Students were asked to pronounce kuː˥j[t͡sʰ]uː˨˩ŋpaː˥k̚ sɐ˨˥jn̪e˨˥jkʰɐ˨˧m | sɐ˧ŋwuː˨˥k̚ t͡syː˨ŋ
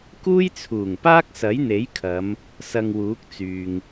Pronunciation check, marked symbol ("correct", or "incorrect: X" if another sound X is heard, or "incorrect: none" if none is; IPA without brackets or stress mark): correct